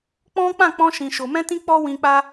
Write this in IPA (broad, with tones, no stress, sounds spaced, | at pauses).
k͡p ɔ̃˦ k͡p ã˦˨ k͡p ɔ̃˧ ʃ ĩ˨ ʃ o˨ m ɛ̃˧ t ĩ˧ k͡p ɔ˦ w ĩ˧ k͡p a˦